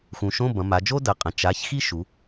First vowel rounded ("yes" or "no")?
yes